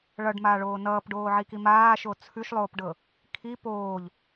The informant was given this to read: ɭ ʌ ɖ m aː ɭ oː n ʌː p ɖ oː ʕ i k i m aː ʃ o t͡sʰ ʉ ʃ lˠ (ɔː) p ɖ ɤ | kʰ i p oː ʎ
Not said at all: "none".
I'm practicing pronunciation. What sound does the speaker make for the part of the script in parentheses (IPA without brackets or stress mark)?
oː